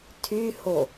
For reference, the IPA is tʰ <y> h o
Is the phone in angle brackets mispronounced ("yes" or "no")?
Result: no